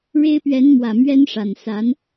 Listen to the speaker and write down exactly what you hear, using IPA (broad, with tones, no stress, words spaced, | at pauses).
ɻe˥ɪ̯ pɥɛ˧˥nmwä˨˩ mɥɛ˥nʂa˨˩n sa˧˥n